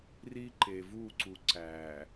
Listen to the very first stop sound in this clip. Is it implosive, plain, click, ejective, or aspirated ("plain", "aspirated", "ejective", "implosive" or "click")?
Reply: click